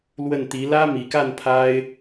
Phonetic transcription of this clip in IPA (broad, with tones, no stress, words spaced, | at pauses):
lwə˥˩nt̪i˧˥ lä˥mi˨˩ka˥˩n pʰa˥ɪ̯